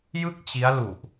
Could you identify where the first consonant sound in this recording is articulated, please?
palatal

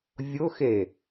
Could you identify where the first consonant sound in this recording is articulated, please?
labial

